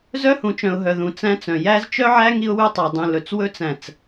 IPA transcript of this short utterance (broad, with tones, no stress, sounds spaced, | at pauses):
z œ˦ h ũ˨ t͡ʃ œ̃˨ ʊ̯ ɦ œ˨ ð ũ˨ t͡s æ̃˦ t͡s œ̃˨ j æ˦ z t͡ʃ œ˦ ʕ æ˦ ŋ i˦ ʊ̯ w ʉ˦ tˤ œ˨ dˤ ũ˨ l ɵ˨ t͡s w ɵ˦ t͡s æ̃˨ t͡s